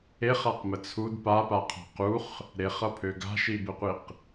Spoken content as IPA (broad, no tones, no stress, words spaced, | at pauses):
eχaqmə t͡sʰud papaqʰa̤ quχ | ɾeχʌpʰø ɡa̤ʃibɘqʷiq